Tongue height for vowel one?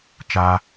low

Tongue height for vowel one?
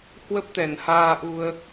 mid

